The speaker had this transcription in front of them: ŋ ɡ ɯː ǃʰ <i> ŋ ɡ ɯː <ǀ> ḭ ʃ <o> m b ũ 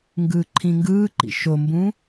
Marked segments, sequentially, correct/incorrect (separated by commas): incorrect, incorrect, correct